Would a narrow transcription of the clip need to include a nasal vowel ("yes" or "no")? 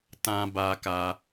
yes